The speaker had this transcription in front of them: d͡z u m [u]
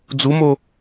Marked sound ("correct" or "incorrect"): incorrect